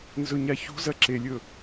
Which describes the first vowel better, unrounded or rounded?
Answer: rounded